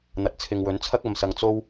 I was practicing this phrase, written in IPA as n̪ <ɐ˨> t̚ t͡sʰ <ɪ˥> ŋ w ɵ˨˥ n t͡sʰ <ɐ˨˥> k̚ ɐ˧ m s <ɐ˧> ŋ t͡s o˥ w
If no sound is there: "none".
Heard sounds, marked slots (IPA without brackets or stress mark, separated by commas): ɐ˨, ɪ˨, ɐ˥, ɐ˧